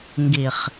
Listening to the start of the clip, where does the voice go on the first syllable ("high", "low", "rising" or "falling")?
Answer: low